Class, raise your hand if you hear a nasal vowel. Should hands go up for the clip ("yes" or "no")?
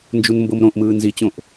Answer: yes